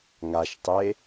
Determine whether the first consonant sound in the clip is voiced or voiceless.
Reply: voiced